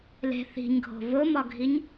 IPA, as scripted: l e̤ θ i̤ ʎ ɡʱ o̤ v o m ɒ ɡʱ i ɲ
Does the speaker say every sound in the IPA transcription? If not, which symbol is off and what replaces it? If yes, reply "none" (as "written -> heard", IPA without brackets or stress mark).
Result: ʎ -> ɲ